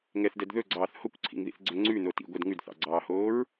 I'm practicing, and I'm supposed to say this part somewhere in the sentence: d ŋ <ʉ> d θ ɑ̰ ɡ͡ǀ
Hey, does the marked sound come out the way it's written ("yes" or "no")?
yes